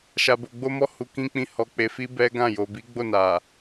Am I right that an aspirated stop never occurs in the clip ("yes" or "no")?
yes